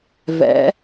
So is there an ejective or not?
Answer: no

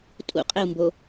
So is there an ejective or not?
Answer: yes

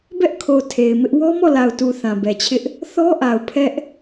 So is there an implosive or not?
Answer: no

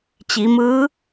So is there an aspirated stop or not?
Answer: no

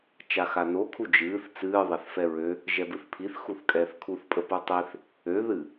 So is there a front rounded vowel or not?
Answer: yes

